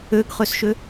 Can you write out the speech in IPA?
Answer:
ø ɡ χ ø s ʃ ø

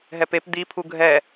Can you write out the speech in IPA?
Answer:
ɦ ɛ p e p d̪ i pʰ u ɡʱ ɛ

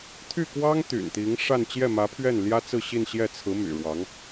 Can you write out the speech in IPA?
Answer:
t̪ʰ y˥˩ k w ɑ˥ ŋ t̪ y̰˨˩ n t̪ i˧˥ ŋ ʂ a˥˧ n t͡ɕ j ɛ˥˩ m ä˧˥ pʰ ɥ ɛ˥˩ n l j ä˥ t͡s ɹ̩˥˧ ɕ i˥˧ n ɕ j ɛ˥˩ t͡sʰ ɹ̩˧˥ m y̰˨˩ ɻ w ɑ˧˥ ŋ

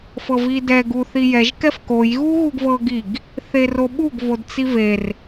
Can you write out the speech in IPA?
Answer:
f ɤ v i d ɛ ɡ u θ i j ɛ ʒ k ɛ f k o j ɣ u ɣ u ɡ v ɤ ɡ i ɡ | θ e r o ɓ u ɡ v o d t͡s i v e r

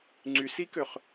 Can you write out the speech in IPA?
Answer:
ŋ͡ǀ y s i k ø χ

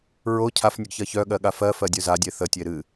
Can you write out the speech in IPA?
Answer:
ɹ o cʰ a f nʲ ə ɡ ç ɜ ç œ ɠ ɜ ɠ a f ɜ f ɜ dʲ œ z a dʲ e θ ə tʲ e ɾ ɨ

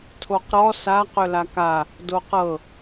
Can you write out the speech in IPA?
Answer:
tʰ o q ɾ ɔ s a q ɵ l a k a | d o q ɤ

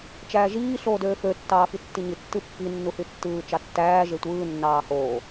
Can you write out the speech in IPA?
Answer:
t͡ʃ æː ʒ iː ɬ oː d øː f ø tː ɑː f i tː i ɲ i tː ɯ pː i nː u h y tː ɯː t͡ʃ ɑ tː æː ʒ e tʷ ɯː nː ɑː h oː

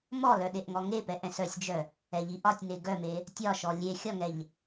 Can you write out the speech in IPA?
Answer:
m ɔ l œ ɗ e ʔ ŋ ɔ ŋ e p ɛ ʔ ɛ̃ s œ sʲ d͡ʒ œ | ɛ ʎ i ʔ ɒ tʲ n e ɡ œ m e | tʲ ɒ ʃ ɔ lʲ e xʲ ɒ ŋ ɛ ʎ

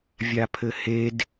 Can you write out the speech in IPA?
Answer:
vʲ a pʰ ɘ h e d

